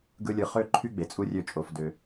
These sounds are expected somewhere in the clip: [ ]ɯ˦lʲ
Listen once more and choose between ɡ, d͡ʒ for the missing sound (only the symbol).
ɡ